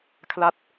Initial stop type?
aspirated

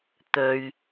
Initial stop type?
plain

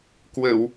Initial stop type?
plain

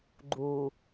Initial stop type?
click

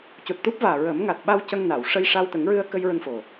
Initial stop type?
plain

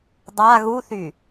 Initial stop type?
plain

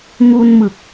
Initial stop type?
plain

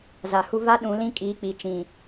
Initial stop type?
implosive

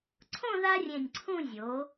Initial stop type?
click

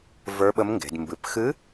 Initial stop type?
implosive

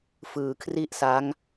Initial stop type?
aspirated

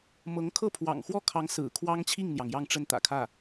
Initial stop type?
aspirated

